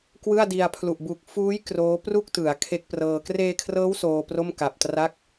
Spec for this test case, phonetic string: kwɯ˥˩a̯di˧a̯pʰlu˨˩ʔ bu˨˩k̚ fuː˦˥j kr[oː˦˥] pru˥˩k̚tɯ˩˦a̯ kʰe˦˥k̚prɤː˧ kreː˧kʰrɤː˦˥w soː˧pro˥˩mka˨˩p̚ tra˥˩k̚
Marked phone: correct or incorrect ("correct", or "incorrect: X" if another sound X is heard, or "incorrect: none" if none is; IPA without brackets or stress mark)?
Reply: correct